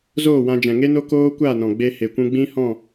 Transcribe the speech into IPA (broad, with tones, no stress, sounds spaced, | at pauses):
z oː˦˨ w ã˧ d͡ʒ ɛ̃˨ ŋ e˦ n o˦ k oː˦ kʷ a˦˨ n ɔ̃˨ ɡ͡b e˧ h e˨ kʷ ũ˧ ɡ͡b ĩ˦ h ɔ̃˦˨